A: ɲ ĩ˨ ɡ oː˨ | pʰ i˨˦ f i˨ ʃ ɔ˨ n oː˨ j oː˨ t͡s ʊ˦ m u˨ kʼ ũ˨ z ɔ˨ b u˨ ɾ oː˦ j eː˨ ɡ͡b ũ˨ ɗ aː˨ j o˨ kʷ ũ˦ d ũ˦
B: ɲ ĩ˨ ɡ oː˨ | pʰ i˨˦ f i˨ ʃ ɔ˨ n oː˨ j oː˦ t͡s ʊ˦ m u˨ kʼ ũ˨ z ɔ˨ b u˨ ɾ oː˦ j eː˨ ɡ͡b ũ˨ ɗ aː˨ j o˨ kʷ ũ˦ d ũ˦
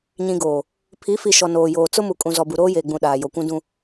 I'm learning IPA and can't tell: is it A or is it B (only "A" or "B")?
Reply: A